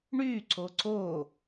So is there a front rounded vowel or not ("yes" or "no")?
yes